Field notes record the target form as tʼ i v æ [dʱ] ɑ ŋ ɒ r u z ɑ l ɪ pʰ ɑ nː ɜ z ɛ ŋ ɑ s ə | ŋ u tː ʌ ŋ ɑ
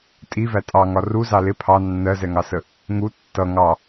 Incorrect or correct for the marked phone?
incorrect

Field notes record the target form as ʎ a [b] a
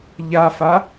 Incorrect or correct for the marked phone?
incorrect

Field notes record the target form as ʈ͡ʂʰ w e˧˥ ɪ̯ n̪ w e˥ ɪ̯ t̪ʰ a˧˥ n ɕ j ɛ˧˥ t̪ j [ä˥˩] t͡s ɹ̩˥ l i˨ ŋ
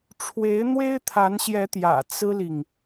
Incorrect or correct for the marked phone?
incorrect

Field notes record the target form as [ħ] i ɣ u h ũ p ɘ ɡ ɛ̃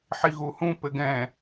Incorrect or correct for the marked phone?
correct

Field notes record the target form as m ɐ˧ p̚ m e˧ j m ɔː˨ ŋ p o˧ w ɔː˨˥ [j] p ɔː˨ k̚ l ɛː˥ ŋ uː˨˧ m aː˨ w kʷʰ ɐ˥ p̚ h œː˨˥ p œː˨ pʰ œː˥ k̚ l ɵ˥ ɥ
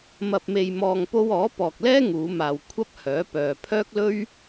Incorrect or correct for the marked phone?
incorrect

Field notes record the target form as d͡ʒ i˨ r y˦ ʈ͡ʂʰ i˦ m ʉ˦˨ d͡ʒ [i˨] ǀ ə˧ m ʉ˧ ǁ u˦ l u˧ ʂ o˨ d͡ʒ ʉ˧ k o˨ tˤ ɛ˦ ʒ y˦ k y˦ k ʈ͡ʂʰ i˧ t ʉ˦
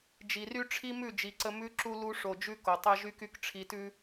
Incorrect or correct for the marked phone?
correct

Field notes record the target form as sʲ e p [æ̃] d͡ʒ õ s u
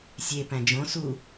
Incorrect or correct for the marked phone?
correct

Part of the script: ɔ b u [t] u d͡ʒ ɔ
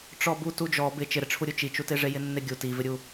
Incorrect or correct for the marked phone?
correct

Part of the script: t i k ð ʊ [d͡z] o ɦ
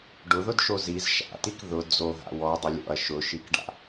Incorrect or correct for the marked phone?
correct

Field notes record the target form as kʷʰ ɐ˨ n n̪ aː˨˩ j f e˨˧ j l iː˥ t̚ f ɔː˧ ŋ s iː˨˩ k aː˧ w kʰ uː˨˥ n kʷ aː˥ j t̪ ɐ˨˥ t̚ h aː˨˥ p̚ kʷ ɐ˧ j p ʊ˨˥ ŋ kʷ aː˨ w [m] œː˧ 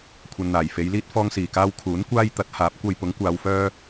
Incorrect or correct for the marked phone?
incorrect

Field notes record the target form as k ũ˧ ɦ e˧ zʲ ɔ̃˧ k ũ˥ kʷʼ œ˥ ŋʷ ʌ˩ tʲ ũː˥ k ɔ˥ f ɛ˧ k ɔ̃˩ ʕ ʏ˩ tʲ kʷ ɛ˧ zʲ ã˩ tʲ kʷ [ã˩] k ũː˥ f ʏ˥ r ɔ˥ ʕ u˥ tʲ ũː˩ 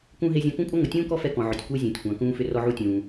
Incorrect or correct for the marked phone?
correct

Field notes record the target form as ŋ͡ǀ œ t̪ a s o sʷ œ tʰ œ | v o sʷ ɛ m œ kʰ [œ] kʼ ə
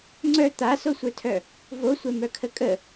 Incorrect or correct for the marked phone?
incorrect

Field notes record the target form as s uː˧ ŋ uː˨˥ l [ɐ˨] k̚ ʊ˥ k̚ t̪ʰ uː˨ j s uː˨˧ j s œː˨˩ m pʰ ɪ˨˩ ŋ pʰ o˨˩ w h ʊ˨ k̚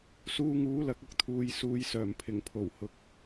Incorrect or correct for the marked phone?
correct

